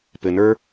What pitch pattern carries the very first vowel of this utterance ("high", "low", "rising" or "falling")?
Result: low